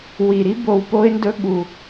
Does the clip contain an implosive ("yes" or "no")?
yes